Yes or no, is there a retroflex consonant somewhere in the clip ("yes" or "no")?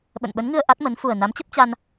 no